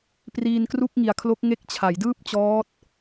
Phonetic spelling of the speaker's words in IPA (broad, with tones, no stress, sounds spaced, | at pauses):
p r iː˧ n k r u˥˩ k̚ ŋ i˨˩ a̯ kʰ l o˦˥ k̚ ŋ e˦˥ k̚ t͡ɕʰ a˩˦ j d ɯː˥˩ p̚ t͡ɕ ɔː˦˥ t̚